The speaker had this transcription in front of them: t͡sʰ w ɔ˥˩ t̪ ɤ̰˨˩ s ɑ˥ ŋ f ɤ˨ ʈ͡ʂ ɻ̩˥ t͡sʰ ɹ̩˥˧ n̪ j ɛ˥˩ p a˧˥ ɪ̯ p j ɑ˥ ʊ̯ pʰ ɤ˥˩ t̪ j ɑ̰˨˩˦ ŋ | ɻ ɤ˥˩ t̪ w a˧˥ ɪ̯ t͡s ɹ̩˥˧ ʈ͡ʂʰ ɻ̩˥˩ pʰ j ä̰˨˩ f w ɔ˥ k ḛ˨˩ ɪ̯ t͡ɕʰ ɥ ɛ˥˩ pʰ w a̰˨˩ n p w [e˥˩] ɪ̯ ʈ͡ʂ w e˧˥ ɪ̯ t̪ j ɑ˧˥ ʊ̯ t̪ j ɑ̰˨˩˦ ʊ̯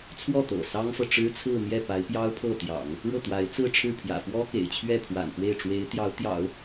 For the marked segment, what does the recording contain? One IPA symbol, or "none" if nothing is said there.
e˥˩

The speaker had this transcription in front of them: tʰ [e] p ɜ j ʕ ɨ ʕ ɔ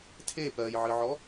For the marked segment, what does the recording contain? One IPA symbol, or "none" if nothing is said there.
e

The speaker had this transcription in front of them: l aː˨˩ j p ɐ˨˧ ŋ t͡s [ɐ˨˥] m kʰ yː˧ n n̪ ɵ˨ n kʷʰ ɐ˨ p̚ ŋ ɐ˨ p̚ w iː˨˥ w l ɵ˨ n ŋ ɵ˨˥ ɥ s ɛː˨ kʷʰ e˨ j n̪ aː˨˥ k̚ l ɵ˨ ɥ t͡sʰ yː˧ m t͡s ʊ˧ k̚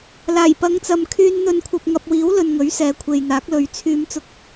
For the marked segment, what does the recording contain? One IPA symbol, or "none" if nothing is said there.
ɐ˨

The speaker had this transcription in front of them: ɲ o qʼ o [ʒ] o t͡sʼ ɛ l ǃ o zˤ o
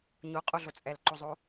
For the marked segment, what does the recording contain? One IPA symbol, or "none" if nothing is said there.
ɮ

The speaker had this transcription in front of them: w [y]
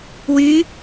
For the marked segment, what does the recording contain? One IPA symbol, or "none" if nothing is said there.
y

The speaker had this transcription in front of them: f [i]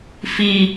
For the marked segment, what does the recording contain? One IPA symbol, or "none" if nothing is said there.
i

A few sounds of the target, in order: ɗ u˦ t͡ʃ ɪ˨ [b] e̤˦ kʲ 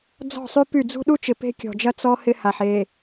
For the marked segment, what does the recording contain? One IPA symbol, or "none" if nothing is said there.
p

